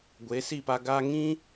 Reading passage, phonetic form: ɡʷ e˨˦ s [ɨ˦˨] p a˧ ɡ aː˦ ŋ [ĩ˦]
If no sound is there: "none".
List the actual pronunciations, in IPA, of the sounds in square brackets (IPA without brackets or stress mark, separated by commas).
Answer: i˦˨, ĩ˦